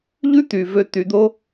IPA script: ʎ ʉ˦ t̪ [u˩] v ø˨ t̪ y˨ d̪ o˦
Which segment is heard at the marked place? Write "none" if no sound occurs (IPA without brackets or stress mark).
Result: y˩